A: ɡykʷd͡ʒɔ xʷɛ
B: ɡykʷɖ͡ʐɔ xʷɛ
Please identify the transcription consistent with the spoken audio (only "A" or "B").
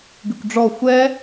B